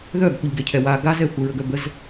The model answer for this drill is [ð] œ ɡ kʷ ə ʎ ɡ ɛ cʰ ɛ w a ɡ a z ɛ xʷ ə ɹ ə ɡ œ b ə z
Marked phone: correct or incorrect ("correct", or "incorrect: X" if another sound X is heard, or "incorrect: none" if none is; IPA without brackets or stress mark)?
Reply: correct